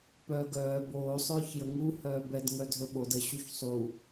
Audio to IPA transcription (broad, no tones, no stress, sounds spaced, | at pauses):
p œː ɡ œː b oː sˤ œː ç j ə ŋ u h œː b ɛ d ŋ œ dʱ ɵ ɓ o d ə ɕ u ç sˤ u